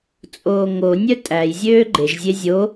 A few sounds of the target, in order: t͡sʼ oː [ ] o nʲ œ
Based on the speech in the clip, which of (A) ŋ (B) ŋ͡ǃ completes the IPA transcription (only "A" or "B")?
A